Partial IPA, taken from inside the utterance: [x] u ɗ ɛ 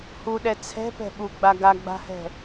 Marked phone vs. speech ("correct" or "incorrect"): incorrect